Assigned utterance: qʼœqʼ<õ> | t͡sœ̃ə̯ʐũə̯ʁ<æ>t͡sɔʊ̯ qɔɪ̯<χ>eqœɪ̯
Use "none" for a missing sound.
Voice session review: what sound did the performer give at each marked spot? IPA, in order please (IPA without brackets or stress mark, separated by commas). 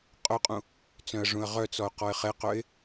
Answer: ũ, œ, χ